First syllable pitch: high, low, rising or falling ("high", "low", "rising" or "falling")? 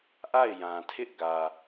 falling